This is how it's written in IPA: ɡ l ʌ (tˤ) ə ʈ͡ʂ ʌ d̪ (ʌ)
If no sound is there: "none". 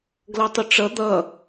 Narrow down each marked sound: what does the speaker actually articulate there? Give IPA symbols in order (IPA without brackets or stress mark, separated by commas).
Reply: tˤ, ʌ